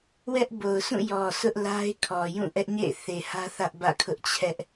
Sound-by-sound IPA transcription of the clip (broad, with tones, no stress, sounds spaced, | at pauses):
w ɛ˦ ʔ b o˨ ʊ̯ sʰ ũ˦˨ j ɔ˨ s ʊ˦ ʔ l a˦ ɪ̯ kʰ ɔ˨ j ũ˦˨ ʔ ɛ˦ ʔ ɲ ḛ˦˨ ɪ̯ θ e˨ h ä˦ θ ä˦ ʔ b ä̰˦˨ kʰ ʊ˦ ʔ t͡ɕʰ ɛ˦ ʔ